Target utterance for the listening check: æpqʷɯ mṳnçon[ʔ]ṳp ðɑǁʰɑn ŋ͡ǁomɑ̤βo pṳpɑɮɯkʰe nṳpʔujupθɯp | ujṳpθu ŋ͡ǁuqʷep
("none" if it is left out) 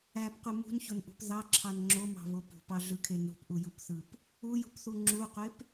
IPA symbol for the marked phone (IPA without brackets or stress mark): ʔ